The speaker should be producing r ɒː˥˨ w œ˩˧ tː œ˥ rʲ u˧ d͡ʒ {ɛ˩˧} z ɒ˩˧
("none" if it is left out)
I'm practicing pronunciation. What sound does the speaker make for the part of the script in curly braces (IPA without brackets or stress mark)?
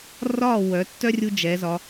ɛ˩˧